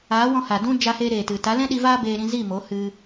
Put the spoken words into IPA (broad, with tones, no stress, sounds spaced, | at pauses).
aː˨˦ w ɔ̃˧ h a˨ d ũ˦ d͡ʒ a˧ h eː˧ ɾ eː˨ t ɨ˨ t a˨˦ l ɛ̃˦ ɗ i˧ v aː˦ b eː˧ ɾ ĩ˧ z i˦˨ m o˨˦ h ɨ˧